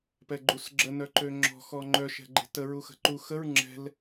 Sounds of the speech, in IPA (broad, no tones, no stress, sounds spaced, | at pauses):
p ɛ ɡ͡ǃ u s ɡ͡ǁ ə n œ ǃ ø ŋ͡ǁ ɔ̤ x ɔ ŋ͡ǃ œ ʃ ɛ̤ ɡ͡ǃ e̤ t ə ɹ u x ə̤ ǃ u x ə ɹ ŋ͡ǁ ɛ̤ l